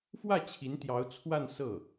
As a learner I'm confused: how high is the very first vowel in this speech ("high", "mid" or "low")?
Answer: low